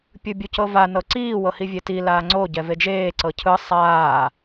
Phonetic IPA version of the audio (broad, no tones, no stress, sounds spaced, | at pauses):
pʲ ɯ bʲ u c ɤ v a n ɤ ǀ iː w ɤ h i vʲ e t i l aː ŋ͡ǀ o ɟ ɛ v e d͡ʒ eː ǀ ɤ cʰ ɯ sˤ aː